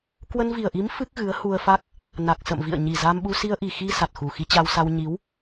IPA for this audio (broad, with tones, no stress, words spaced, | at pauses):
kwə˧nvi˨˩ə̯ʔi˨˦m fɨ˦˥k̚ɣɨ˨˦ə̯hu˧ə̯fa˦˥k̚ | na˨˩k̚sə̰˧˨mvḭ˧˨ə̯ ɲi˨˩za˧mɓu˧ si˧ə̯ʔi˨˩xi˧ sa˨˩t̚xu˨˩xi˧t͡ɕa˧w sa˧wɲi˨˦w